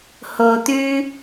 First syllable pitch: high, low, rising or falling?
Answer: low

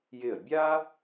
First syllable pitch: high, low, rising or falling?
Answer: falling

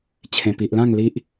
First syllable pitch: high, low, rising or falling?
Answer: low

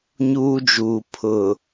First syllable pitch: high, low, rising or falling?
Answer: high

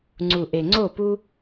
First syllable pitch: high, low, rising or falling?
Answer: low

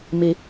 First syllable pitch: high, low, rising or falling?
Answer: rising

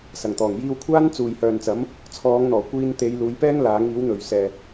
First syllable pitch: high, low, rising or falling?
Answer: low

